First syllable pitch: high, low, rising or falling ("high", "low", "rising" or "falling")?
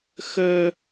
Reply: high